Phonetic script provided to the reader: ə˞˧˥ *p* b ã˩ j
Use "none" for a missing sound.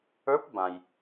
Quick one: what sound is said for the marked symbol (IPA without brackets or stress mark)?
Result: p